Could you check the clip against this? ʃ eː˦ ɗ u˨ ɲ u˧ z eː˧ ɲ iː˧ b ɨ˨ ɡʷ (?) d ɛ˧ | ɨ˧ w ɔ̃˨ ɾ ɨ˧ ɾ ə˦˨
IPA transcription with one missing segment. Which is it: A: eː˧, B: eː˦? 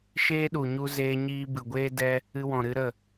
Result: B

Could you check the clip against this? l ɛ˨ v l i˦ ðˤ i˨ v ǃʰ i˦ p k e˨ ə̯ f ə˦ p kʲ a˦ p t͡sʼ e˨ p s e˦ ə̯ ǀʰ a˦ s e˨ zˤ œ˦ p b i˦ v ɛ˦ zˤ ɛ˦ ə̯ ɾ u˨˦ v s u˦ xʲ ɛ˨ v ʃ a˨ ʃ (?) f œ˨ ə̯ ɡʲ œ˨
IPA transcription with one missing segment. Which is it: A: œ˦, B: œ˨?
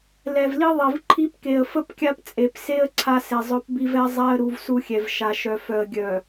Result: B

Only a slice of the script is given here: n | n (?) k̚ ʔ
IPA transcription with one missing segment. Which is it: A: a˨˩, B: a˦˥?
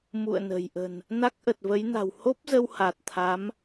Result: B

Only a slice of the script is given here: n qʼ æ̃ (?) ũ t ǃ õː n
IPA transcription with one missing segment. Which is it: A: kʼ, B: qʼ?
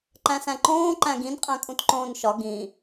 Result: A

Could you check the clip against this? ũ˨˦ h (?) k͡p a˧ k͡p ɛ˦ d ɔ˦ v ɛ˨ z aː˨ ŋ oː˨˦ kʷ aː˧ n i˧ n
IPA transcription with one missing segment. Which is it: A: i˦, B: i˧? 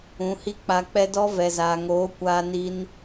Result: A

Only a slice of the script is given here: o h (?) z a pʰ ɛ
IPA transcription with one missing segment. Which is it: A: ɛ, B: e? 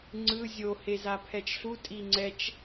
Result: B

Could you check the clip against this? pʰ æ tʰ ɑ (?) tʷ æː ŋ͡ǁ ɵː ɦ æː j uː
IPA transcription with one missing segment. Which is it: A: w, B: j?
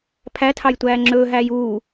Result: B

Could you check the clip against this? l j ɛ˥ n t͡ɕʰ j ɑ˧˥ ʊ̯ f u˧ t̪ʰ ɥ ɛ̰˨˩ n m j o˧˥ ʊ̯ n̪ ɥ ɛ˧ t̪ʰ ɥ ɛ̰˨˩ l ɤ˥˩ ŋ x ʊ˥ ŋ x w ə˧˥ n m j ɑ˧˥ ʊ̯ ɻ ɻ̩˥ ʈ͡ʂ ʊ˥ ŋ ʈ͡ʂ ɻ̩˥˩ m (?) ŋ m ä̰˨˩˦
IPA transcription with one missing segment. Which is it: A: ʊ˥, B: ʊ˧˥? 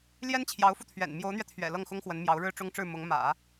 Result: B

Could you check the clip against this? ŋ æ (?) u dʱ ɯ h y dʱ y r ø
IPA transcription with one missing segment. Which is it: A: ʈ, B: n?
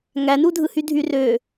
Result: B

